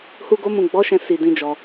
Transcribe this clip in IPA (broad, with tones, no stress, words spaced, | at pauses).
hu˧ɡo˧mũ˨ ɡ͡bɔ˨˦ʃɛ̃˧ si˨dĩ˨d͡ʒɔ˨